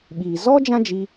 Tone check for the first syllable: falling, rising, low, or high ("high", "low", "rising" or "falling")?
low